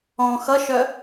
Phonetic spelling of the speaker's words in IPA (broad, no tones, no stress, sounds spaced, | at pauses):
ɔ̃ x ʌ ʃ œ